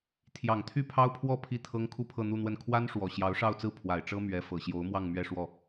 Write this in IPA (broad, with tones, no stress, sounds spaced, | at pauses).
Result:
t̪ʰ j ɑ˨˩ ŋ t̪ʰ y˥˩ pʰ ɑ˥ ʊ̯ pʰ w ɔ˥˧ pʰ i˥˩ t̪ʰ ɤ˥ ŋ kʰ u˥˧ pʰ ɤ˥˧ n̪ u˥˧ n̪ w ə˥˩ n kʰ w a˥ n ʂ w ɔ˨˩ ɕ j ɑ˧˥ ʊ̯ ʂ ɑ˥˧ ʊ̯ t͡s ɹ̩˥˩ pʰ w a˨˩ ɪ̯ ʈ͡ʂ ɤ˥ m ɥ ɛ˧˥ f ɤ˨˩ ɕ j o˧˥ ʊ̯ m w ɑ˥˧ ŋ m ɥ ɛ˥˧ ʂ w ɔ˥˩